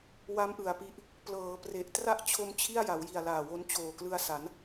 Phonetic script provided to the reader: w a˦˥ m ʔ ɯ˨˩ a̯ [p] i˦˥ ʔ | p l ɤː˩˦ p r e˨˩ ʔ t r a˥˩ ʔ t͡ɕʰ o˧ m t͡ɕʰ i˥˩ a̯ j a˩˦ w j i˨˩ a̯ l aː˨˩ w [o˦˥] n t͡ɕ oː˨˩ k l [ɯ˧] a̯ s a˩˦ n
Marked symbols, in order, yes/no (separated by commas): yes, yes, yes